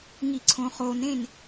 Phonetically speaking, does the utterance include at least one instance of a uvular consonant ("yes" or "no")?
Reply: yes